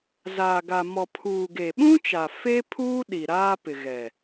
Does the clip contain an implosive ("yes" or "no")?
yes